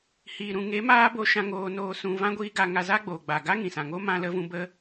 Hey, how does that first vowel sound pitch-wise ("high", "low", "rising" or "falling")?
low